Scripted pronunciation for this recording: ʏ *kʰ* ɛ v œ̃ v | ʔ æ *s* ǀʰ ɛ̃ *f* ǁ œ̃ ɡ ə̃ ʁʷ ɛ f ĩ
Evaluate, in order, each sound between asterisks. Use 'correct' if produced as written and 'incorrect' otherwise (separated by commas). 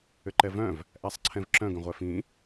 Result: incorrect, incorrect, incorrect